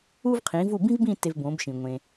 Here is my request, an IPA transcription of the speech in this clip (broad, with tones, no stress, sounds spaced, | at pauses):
u˥ v qʰ ĩ˩˥ v u˥˩ b ĩ˥ v b ĩ˥˩ t e˧ v b õː˩˥ b ʃ ĩ˩ ŋʷ ẽ˩